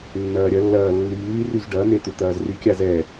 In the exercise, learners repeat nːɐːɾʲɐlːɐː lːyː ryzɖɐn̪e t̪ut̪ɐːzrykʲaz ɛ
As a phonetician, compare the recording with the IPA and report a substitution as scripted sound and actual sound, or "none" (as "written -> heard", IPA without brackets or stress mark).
none